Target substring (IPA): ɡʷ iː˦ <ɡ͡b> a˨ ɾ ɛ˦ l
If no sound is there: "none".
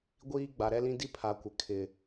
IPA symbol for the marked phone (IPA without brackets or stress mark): ɡ͡b